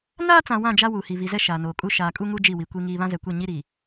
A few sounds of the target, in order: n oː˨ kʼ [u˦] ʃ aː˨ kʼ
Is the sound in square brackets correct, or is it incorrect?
correct